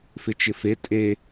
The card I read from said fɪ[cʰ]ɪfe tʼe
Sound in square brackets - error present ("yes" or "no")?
yes